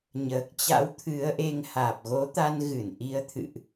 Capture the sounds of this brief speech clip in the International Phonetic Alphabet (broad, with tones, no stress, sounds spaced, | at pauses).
ɲ əː˨˩ k̚ t͡ɕ a̰˧˥ w t̪ʰ ɨ˨˦ ə̯ ʔ e˧ ŋ h aː˨˩ p̚ ɣ o˨˦ t̪ a˧ n ɣ ɨ˧˩ n ʔ i˨˦ ə̯ t̪ʰ ɨ̰˧˨ ʔ